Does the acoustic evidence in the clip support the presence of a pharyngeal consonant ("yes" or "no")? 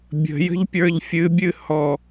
no